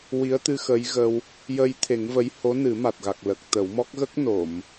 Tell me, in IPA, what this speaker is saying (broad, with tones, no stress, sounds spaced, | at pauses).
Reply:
w i˧˥ ə̯ t̪ ɨ˧ x ə˧˥ j ɣ ə˧ w | j ə˧ j t̪ʰ e˨˩˦ ŋ v ə˧˥ j h o˧˥ n ɨ˨˩˦ m a˨˩ t̚ ɣ a˨˩ k̚ l ə˨˩ k̚ t̪ ə˨˩˦ w m ɔ˦˥ k̚ ɣ ə˦˥ k̚ n o˨˩˨ m